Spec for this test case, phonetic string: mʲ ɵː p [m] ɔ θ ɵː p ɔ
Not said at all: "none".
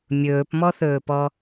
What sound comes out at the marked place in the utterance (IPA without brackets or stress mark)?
m